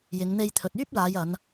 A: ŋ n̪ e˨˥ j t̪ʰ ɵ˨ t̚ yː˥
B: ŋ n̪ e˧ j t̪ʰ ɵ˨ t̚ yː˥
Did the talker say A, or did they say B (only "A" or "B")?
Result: B